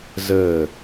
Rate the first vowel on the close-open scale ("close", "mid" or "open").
mid